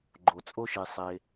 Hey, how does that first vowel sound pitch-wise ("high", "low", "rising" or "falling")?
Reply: low